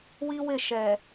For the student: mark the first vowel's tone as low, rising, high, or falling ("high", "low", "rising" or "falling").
high